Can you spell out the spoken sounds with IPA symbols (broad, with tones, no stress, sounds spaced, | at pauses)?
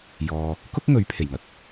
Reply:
j ɔː˨ | k ʊ˥ k̚ ŋ ɵ˨˥ ɥ pʰ e˨˩ j ŋ ɐ˨˥ k̚